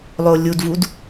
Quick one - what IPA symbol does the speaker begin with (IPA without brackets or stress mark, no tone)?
lˠ